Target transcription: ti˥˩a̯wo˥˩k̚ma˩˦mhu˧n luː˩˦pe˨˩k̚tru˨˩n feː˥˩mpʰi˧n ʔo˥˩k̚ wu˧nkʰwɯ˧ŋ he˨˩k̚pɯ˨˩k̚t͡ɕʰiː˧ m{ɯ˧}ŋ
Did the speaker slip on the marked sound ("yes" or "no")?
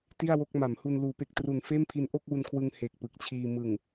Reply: yes